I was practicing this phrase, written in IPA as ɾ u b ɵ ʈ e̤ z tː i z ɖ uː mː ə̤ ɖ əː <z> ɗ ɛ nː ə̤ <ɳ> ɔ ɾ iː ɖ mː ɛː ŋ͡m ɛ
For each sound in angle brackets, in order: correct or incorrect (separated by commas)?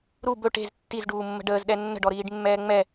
correct, incorrect